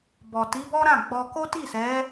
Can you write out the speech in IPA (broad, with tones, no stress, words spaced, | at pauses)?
bɔ˨ti˨˦bɔ˦ ɾã˦˨ ɡ͡bɔ˧ ko˦ti˦˨sɛ˨˦